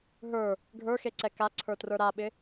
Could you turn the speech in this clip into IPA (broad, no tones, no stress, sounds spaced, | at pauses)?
ɦ ə˞ | ɡʱ ə˞ x e ǀ ɛ k a ǀʰ ə˞ t r ə˞ ɾ a ɓ ɪ